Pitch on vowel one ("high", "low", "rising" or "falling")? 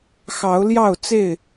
rising